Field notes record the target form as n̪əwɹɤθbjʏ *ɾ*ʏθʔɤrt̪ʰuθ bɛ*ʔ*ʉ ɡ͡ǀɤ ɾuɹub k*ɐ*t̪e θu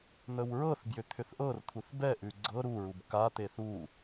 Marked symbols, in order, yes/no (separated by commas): no, yes, no